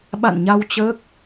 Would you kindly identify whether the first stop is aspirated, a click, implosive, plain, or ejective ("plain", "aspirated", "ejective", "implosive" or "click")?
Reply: implosive